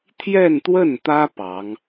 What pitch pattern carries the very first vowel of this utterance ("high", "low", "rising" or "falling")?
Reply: falling